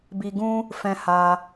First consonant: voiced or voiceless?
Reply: voiced